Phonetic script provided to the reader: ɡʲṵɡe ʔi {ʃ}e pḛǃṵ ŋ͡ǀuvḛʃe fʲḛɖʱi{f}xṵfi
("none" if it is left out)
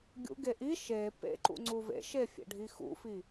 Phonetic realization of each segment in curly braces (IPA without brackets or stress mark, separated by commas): ʃ, none